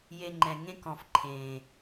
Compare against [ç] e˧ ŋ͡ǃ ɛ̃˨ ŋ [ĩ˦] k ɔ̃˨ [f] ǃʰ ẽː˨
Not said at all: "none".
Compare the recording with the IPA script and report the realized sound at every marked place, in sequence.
j, ẽ˦, f

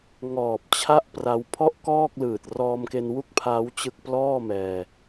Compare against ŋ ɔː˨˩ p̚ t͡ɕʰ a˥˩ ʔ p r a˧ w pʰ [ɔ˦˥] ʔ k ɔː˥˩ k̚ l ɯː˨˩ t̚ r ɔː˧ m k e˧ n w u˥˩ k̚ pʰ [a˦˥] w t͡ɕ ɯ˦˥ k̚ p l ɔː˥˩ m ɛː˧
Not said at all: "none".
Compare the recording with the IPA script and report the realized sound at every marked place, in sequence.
ɔ˥˩, aː˦˥

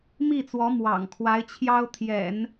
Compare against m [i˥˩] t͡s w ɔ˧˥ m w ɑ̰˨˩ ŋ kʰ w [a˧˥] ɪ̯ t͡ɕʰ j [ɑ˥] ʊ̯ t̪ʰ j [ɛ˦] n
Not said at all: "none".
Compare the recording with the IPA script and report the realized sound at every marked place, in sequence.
i˥˩, a˧˥, ɑ˥, ɛ̰˨˩˦

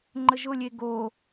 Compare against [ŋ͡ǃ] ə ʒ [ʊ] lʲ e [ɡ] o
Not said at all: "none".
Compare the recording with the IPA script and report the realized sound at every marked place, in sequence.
ŋ͡ǃ, ʊ, ɡ

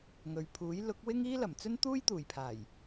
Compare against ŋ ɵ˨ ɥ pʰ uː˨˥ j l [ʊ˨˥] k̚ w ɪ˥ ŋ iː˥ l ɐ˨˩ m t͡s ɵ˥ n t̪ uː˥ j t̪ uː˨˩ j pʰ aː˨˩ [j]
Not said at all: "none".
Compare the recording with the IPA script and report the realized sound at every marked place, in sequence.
ʊ˨˥, j

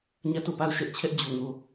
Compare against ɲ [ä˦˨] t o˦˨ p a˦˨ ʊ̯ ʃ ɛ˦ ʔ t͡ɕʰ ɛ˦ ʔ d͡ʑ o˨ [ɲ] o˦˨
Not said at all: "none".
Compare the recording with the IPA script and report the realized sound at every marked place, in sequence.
ä˦˨, ŋ

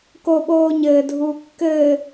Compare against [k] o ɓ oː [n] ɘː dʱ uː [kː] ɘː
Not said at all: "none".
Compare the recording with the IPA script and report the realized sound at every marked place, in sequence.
k, ɲ, kː

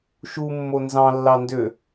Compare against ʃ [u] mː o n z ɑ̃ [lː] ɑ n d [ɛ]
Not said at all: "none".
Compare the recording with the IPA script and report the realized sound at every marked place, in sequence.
u, lː, ø

